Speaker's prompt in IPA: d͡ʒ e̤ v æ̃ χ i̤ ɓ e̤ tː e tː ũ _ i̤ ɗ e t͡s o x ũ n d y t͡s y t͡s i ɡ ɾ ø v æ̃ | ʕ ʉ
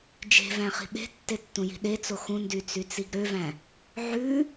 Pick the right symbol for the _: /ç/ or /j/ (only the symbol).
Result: j